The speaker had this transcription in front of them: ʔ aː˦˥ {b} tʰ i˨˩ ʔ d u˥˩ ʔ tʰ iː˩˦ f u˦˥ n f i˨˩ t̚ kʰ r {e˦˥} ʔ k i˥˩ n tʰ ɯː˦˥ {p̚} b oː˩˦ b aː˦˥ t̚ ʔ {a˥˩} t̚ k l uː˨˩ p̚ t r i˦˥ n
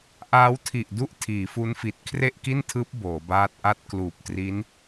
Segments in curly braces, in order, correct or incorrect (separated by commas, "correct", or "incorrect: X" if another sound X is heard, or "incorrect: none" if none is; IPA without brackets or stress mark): incorrect: w, incorrect: e˥˩, correct, correct